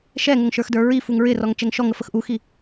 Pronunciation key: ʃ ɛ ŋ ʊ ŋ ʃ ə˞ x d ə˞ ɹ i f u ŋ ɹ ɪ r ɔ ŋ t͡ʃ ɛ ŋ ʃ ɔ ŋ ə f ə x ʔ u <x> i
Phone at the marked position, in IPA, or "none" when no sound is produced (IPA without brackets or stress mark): x